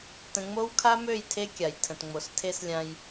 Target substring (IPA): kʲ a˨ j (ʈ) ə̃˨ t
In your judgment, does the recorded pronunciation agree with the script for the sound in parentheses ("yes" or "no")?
no